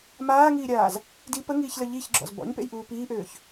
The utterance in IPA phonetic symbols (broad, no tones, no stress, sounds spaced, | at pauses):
m aː ŋ iː ɾʲ aː z | d i p ə ŋ iː ç l ə ʎ i ç ɡ͡ǁ ɔ̰ z b ɔ̰ ɲ p ḛ j ʔ uː p iː ʔ øː ç